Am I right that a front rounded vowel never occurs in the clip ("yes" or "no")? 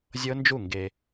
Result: yes